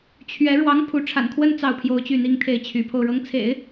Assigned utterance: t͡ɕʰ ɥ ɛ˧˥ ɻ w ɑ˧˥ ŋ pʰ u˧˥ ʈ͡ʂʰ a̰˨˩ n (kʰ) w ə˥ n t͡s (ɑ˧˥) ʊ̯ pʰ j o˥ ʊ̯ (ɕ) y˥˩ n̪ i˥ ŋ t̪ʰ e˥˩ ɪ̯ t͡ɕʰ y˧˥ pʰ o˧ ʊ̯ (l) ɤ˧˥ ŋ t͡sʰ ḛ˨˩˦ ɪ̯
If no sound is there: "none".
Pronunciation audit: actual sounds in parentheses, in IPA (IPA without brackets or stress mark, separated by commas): kʰ, ɑ˥˩, t͡ɕ, ɻ